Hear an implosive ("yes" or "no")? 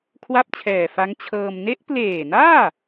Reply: no